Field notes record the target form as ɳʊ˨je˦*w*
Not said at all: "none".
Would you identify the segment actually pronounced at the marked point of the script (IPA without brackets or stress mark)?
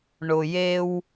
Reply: w